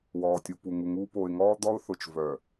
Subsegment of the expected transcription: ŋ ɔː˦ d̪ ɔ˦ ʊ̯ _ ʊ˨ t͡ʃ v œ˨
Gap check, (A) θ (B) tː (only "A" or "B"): A